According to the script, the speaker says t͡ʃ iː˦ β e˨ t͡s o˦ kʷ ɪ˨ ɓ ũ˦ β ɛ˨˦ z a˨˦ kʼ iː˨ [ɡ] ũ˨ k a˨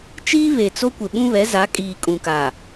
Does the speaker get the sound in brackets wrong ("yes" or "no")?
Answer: yes